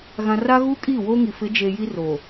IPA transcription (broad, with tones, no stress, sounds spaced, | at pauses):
ɣ ã˨ r a˦ ɣ uː˦ kʼ iː˦˨ w oː˦ ŋ i˨ f ɪ˨˦ d͡ʒ e˨ j i˦ r o˨